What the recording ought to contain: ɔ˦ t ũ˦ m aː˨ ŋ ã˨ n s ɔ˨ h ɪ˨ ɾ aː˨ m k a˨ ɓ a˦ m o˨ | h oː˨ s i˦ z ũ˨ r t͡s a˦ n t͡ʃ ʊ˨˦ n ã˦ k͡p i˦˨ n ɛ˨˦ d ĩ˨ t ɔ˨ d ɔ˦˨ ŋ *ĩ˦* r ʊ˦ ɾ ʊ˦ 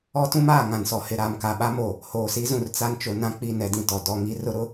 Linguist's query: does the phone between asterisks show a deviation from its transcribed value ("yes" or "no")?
yes